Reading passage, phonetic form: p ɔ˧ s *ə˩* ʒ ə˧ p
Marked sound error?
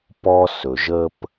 yes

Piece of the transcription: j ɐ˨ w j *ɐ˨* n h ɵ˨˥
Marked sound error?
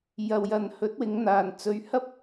no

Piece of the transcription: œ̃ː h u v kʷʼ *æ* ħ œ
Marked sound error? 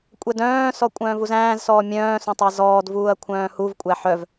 no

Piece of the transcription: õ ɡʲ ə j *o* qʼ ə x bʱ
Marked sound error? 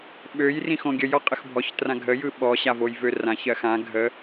yes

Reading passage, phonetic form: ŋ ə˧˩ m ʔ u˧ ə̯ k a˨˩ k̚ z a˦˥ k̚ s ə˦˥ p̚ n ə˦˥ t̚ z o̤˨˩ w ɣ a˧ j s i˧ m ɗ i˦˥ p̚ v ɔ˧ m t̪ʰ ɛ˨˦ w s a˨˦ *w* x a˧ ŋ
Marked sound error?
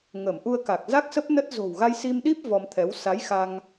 yes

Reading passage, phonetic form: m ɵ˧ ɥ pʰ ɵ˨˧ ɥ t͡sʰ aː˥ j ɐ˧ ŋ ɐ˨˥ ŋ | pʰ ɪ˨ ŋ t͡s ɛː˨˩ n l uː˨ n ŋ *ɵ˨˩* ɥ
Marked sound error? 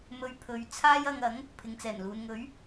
yes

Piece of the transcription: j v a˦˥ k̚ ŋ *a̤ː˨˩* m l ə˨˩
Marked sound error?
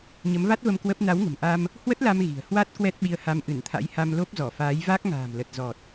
no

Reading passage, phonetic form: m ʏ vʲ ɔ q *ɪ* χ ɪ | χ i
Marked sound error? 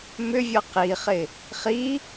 yes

